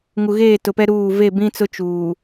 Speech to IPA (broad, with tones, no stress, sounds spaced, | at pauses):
ŋ u˨ ɣ eː˦˨ t ʊ˨ p ɛ˦ ɾ uː˦˨ v e˦˨ b ĩ˦ t͡s ʊ˦ t͡ʃ uː˨